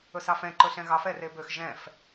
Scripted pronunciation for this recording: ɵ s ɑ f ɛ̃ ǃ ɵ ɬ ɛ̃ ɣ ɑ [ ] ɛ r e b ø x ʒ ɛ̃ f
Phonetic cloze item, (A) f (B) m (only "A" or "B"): A